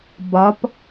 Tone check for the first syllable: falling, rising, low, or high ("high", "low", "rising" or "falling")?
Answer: rising